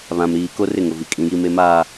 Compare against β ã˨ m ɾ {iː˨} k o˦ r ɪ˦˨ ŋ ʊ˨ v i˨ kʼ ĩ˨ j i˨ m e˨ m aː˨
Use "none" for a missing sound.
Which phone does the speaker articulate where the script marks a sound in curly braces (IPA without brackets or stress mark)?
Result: iː˨